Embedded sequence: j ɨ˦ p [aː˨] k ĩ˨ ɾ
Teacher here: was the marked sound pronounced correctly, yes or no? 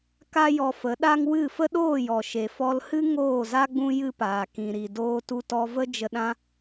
yes